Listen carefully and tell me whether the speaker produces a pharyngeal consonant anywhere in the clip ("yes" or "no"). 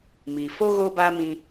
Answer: no